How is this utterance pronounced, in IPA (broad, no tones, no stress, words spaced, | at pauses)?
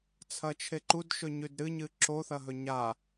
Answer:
t͡sʰɐt͡ʃʰeǃud ʃɵɲʉdɾɨ ɲɨǁo θɐɦɵɲa